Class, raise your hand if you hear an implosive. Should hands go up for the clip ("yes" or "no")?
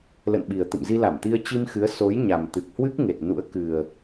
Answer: yes